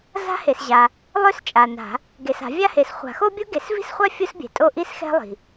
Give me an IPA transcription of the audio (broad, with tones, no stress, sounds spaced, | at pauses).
z a̤˥ h e˨ s ʑ a˨ | lˠ ø˥ s t͡ʃʼ a˨ n a̤˨˩˦ | ɡ e˨ s a̤˨˩˦ vʲ a˥ h e˨ s χʷ a̤˨˩˦ x o˥ bʲ o˥ ɡ e˨˩˦ s v i̤˥ s χʷ a˥ fʲ u˥ s bʲ ɛ̤˨ tʼ o˥ ʔ i˥ s x ɛ̤˥ lˠ i̤˨